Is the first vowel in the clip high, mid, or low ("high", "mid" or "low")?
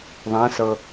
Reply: low